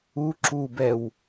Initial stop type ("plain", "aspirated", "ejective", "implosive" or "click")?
click